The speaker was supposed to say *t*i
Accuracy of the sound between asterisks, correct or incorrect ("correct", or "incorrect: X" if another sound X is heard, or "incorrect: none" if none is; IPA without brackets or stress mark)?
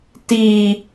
correct